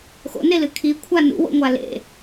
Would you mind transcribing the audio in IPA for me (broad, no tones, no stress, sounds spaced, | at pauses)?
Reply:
x o̰ n e l ɨ kʰ i kʷʰ a n ṵ w o̰ ŋʷ a l ḛ